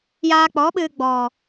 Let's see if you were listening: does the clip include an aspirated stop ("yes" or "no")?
no